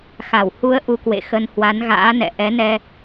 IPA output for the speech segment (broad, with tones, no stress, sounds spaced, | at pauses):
x a˧˩ w h u˨˦ ə̯ ʔ u˧ k w ḛ˧˨ x ə˧ n h w a˨˦ n ɣ a̰ː˧˥ n ɛ̰˧˨ ʔ ɛ˨˦ n ɛ˧